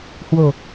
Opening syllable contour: low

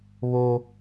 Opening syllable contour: high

